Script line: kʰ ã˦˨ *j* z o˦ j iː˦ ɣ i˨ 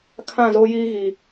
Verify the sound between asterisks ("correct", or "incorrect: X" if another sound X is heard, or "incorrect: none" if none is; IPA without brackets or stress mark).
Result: incorrect: none